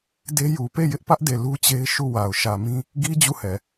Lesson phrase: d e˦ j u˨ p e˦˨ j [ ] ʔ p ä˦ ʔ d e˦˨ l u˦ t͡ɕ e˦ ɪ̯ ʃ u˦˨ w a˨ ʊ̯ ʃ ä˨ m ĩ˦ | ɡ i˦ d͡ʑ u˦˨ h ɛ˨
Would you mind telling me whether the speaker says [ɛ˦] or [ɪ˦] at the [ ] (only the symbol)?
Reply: ɪ˦